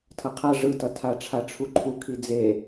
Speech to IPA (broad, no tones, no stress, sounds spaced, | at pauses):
tʰ ʌ qʰ a ʐ ɯ t ʌ tʰ a ʈ͡ʂʰ a ʈ͡ʂʰ u ǃʰ u kʰ i d͡z e